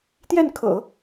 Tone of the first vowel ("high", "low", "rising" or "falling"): falling